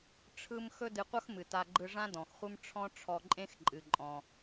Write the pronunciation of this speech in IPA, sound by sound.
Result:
ʈ͡ʂʰɯ˥m xɵ˥dɨ˧qʷʌ˥xmɨ˩ ta˧ɡ͡ǃɯ˧ʐã˥ dɔ̃˩xχʷɨ˥m ʈ͡ʂʰɔ̃˥ ʈ͡ʂʰɔ˧ǃʼẽ˥x ǃʼɨ˩ǃʼɔ̃˩

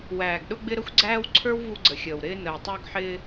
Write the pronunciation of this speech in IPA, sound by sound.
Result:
wæː˨ɡɗʊ˦ɡ͡bɪ˦ ɾə˦xʷɡ͡ǀæː˦wǀʰə˞˦w vu˦ɡ͡ǀə˨xʲəː˨w ɾɪː˦ nəː˨tˤə˞˦ɡħɪː˦

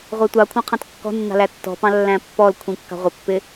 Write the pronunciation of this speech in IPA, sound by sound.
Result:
ʁʷætʷɑkʷʰɑ̃ qʰɑ̃tkːɔ̤nːɑ̤ lætːɔ̤pɑ̃ lːæ̃pːɔlkʷʰĩ kːɑ̤ʁʷɪpːɪ

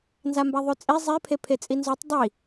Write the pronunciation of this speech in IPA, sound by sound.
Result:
nzambaðˤʉt͡sʼi zˤe pʰepʰet͡sʼinzʉtˤ dˤi

